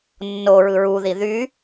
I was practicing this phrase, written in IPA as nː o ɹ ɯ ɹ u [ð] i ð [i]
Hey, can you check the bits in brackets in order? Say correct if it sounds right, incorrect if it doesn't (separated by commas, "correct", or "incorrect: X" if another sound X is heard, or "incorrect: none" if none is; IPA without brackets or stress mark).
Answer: correct, incorrect: y